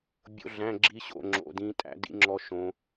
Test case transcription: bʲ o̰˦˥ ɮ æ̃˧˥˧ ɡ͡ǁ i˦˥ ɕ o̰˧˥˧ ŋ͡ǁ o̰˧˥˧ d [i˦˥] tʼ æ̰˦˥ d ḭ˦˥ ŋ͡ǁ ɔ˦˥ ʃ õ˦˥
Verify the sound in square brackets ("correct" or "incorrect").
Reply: incorrect